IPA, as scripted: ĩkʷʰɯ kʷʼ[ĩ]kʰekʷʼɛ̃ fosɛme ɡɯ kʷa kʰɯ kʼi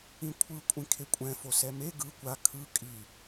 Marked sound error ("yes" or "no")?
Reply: no